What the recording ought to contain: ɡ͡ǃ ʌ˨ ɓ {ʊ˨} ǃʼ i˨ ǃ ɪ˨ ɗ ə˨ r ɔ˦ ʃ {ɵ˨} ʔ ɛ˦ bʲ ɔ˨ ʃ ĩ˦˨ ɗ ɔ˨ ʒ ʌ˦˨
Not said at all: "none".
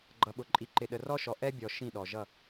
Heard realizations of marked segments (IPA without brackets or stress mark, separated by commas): ʊ˨, ɔ˨